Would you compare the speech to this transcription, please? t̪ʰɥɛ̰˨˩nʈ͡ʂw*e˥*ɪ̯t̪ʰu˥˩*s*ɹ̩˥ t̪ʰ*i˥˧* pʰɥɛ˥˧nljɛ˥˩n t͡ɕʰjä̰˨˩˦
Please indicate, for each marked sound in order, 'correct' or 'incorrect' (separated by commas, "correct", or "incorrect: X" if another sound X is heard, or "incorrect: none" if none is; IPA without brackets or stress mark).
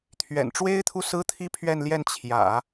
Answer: correct, correct, incorrect: i˥